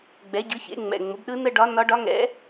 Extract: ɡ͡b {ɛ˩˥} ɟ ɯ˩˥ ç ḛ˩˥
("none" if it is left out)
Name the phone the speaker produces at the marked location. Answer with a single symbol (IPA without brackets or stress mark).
ɛ˩˥